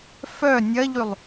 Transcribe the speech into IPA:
f œ nʲ ɐ ʎ y lˠ

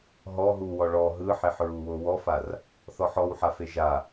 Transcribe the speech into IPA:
ɦ ɔ ɦ u w ɔ ɭ ɔ ɦ ɯ ħ e ħ ɹ u w o w ɔ f a r | θ ɔ ħ ɔ w ħ a f e ʒ a

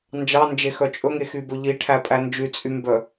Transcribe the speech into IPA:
n d͡ʒ ɑ n d͡ʒ e x œ t͡ʃʼ ɵ ŋ e x y b ɵ ʎ i ʈʰ æ pʼ æ n d͡ʒ y t͡sʼ y m b œ

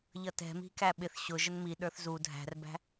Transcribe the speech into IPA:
ʎ ʌ t ɛ̤ m i̤ k æ ɓ ɪ θ ɕ ʊ ʒ ə n m i ɗ ə˞ θ z u dʱ æ̤ r b æ̤

